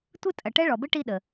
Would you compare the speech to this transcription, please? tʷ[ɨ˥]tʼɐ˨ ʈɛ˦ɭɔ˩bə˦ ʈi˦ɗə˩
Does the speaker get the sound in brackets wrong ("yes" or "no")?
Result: no